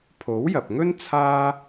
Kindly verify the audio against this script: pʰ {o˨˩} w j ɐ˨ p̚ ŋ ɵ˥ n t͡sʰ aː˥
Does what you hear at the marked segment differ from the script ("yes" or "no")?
yes